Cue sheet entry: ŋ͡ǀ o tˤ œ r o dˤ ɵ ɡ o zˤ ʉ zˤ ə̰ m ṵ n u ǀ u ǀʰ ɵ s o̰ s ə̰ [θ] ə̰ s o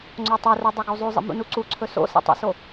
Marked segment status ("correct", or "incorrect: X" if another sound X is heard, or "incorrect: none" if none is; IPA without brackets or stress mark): incorrect: tˤ